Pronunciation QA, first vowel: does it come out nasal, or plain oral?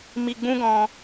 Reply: oral